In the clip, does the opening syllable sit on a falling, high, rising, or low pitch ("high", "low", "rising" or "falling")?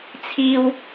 high